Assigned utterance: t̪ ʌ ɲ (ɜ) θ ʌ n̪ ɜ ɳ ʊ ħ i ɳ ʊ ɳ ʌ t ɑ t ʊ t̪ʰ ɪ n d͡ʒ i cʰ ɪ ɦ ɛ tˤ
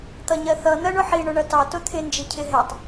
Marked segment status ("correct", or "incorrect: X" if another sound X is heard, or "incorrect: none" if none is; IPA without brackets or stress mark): correct